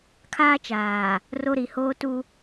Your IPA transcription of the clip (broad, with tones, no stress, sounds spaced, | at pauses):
kʰ aː˦ t͡ʃ aː˨ | r o˦ ɾ i˨ h oː˦ t u˦